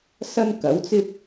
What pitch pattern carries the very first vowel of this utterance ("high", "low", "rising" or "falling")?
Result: high